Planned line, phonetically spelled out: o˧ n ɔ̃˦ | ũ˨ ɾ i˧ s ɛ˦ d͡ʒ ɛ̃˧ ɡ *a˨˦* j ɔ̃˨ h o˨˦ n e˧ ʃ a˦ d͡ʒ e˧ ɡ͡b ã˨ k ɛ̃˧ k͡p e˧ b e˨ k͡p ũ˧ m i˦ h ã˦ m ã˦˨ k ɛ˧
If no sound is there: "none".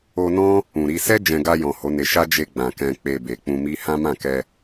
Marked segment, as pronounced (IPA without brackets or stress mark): a˧